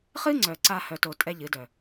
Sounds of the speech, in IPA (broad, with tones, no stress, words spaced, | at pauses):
χɨ˦ŋ͡ǀœ˨ǀa˧ hœ˧to˧ tʼɛ˦ʎɨ˨˦dœ˨